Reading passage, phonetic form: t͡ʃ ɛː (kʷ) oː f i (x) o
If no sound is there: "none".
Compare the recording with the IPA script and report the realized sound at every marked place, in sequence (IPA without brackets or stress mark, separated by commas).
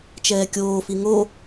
kʲ, ŋ